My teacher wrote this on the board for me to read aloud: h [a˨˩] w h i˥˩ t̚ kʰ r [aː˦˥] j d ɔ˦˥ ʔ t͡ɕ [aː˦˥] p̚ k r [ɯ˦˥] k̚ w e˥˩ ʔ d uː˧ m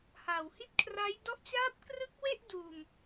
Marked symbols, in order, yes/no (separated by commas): yes, no, yes, yes